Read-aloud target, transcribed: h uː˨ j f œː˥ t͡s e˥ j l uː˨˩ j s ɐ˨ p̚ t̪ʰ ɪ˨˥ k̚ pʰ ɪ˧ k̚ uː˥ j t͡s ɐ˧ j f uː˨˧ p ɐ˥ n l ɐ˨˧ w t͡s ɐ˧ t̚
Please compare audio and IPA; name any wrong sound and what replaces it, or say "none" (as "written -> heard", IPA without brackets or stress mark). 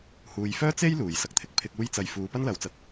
p̚ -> k̚